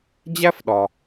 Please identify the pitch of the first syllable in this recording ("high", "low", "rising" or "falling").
high